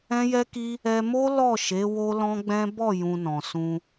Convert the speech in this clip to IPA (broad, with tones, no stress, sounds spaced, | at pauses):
ɛ̃˦ j ɛ˦ k i˦ | ɛ˧ m o˦ l ɔ˦˨ ʃ e˨˦ w o˦ l ɔ̃˦ ɡ͡b ɛ̃˦ b ɔ˦˨ j ũ˧ n ɔ̃˨ s ũ˧